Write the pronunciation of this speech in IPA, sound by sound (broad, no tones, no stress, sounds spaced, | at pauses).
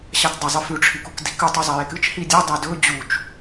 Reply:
ɕ a t dˤ ɐ zˤ ɨ f ʉ ʈ͡ʂʰ i k u k d i k ʉ tˤ u zˤ ɐ j e k ɨ t͡ʃ h i dʲ ɐ dˤ ɐ d ɵ d͡ʑ u t͡ʃ